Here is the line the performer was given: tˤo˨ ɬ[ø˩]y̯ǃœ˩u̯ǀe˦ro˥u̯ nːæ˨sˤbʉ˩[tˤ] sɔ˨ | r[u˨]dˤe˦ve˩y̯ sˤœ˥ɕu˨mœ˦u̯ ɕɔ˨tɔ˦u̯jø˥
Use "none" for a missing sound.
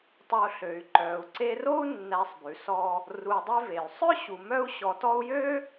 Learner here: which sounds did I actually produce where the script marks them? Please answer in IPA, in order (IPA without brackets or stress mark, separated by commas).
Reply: ø˩, none, u˨